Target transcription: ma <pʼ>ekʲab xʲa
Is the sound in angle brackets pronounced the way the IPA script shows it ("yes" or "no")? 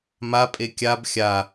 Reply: yes